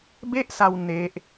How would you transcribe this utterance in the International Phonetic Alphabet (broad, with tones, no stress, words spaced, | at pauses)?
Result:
be˥˩ʔsa˧w ne˦˥ʔ